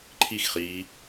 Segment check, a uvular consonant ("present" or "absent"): present